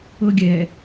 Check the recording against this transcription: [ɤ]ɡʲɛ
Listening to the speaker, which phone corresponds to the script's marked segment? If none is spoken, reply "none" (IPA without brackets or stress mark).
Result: ɤ